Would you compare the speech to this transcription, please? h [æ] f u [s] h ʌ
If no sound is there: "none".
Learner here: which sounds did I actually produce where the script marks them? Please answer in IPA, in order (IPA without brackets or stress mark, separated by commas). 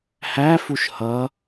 æ, ʃ